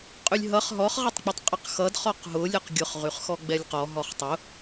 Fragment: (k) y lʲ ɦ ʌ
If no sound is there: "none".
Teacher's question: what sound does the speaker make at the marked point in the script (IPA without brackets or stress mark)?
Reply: qʼ